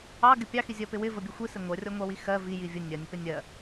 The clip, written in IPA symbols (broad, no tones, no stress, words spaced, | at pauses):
ɑɡɪ pʲɑxi zʲɜpɪwɪvə bʲəxʷisɪ ŋʷɜrʲɔŋʷɑwi xɜ vi jivʲə nʲɜnʲəpɪ nʲɜ